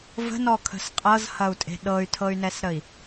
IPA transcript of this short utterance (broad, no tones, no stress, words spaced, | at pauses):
və̤nɔkʰə̤s qʼɤzhɐu̯tʼe̤ ɗɤy̯tʰɤy̯nɛsɾəi̯